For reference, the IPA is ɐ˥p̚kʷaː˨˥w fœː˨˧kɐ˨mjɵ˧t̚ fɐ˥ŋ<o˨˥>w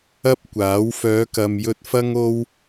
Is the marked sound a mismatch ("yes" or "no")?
yes